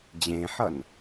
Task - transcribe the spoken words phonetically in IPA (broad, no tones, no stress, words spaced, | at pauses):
d͡ʑẽħʌn